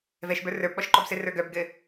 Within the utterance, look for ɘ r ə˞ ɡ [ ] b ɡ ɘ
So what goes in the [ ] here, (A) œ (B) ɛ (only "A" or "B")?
A